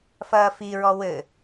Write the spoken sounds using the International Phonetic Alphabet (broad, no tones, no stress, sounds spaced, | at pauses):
f ɐː f i ɹ ɔ w ɘ